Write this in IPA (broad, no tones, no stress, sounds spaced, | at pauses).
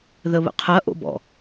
ð ə β ə̰ qʰ ɐ ʔ o̰ b ɔ̰